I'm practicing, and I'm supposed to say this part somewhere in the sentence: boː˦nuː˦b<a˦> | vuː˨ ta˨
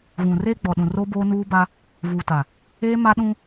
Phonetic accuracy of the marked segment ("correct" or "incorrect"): correct